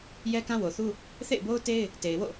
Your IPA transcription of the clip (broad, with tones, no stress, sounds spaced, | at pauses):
j ɛ˦ k ã˦ w o˨ θ u˦ | θ ḛ˦˨ ɪ̯ b o˦ ʊ̯ t e˦ ɪ̯ | t e˨ ɪ̯ w o̰˦˨